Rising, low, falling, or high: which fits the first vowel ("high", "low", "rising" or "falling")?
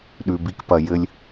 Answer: low